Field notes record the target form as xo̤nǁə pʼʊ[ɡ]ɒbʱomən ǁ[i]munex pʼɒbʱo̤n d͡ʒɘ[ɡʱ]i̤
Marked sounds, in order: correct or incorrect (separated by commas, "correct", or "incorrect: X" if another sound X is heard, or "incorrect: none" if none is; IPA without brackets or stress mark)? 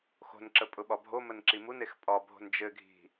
incorrect: ɓ, correct, correct